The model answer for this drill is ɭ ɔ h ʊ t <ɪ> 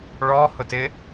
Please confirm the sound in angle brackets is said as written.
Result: yes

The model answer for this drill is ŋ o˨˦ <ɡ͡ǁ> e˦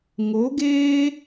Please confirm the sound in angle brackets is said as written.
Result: no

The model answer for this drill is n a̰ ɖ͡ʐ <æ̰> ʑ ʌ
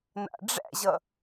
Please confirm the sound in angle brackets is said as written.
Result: yes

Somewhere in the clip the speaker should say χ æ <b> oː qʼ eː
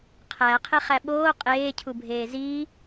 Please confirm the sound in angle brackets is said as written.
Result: no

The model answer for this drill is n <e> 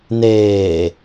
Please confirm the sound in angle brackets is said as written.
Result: no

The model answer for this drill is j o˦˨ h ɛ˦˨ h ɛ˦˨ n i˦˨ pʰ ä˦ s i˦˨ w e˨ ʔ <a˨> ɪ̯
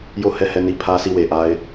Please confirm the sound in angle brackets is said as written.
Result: no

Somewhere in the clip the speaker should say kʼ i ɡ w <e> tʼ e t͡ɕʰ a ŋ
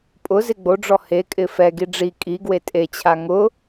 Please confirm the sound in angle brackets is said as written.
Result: yes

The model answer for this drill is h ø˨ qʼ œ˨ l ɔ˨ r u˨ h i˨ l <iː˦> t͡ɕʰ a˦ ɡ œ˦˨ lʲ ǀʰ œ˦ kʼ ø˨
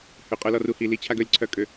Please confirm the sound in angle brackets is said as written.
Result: no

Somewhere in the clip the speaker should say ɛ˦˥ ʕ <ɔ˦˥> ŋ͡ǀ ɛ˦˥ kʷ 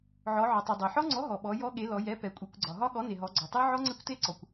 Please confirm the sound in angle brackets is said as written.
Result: yes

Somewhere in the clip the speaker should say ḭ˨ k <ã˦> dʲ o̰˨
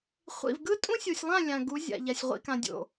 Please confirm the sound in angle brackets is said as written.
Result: no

